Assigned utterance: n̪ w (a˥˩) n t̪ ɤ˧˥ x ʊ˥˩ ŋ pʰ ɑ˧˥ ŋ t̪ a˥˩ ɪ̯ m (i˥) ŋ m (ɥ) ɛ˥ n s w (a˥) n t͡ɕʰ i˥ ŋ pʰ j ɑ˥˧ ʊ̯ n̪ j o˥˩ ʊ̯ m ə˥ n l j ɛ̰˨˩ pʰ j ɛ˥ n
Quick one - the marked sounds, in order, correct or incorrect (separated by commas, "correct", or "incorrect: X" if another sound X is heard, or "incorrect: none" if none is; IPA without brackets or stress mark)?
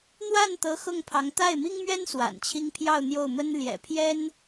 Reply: correct, correct, correct, incorrect: a̰˨˩